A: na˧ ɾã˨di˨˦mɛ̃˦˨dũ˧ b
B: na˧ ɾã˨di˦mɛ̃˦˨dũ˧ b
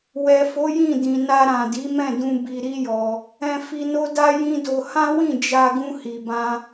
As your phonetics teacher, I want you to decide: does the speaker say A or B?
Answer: A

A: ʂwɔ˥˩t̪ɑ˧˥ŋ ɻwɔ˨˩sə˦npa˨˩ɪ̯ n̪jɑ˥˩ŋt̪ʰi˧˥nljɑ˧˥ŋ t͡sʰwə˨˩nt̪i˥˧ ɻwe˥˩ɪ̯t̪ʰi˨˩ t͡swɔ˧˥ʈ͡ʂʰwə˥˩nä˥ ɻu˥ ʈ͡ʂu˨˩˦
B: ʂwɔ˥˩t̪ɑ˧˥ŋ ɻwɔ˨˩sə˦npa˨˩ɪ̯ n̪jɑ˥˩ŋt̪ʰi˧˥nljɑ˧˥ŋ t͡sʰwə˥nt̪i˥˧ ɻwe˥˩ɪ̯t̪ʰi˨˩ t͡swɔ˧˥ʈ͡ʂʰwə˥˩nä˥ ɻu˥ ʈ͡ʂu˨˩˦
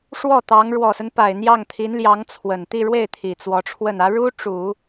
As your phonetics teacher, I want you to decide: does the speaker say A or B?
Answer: A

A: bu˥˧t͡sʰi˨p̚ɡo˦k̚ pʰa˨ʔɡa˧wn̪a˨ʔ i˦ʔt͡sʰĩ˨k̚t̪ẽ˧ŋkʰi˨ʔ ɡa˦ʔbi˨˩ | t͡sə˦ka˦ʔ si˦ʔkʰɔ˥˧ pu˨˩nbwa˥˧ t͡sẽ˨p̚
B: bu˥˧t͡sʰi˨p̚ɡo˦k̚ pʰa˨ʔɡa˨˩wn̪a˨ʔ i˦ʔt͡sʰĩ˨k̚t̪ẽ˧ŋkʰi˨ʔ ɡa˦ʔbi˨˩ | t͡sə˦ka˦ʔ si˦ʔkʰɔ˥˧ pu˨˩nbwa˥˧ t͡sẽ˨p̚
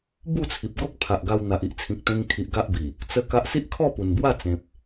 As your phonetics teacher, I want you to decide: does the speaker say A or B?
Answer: A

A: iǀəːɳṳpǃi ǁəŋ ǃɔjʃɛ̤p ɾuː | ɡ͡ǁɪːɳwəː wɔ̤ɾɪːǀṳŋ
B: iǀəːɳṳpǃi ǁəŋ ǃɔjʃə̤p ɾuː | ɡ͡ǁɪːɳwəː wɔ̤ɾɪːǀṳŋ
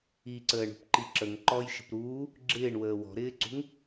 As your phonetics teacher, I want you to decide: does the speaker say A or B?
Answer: B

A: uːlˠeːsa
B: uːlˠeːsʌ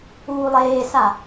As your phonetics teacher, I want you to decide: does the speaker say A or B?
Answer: A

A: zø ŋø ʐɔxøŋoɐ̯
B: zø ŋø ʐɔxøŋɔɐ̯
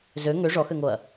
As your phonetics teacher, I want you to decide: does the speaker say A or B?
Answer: A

